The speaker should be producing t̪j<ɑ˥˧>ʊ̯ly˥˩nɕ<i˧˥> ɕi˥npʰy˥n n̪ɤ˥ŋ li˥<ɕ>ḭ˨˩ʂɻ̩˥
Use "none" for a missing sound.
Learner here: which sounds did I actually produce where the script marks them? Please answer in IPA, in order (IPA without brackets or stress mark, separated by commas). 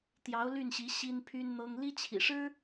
ɑ˧˥, i˧˥, t͡ɕʰ